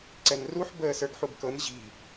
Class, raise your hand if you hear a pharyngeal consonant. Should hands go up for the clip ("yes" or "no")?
yes